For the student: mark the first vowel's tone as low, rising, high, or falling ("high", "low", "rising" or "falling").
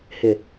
low